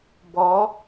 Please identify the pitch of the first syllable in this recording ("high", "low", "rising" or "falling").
rising